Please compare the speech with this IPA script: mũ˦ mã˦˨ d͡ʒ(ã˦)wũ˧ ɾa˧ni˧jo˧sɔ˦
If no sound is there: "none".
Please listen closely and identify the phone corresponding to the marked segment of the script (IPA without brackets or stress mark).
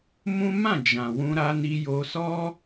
ã˨